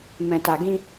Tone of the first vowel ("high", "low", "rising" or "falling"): low